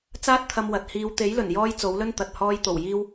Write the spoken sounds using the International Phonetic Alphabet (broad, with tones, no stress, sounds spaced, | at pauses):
t͡s aː˥ t̚ t̪ʰ ɐ˧ m w ɐ˨ t̚ h iː˧ w t̪ e˨˥ j l ɵ˨˩ n j ɔː˧ j t͡s o˨˥ w l ɵ˥ n t̪ ɐ˨ t̚ h ɔː˧ j t̪ o˨˩ w j iː˧ w